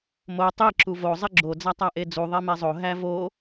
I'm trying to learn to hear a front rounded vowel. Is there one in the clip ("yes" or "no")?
no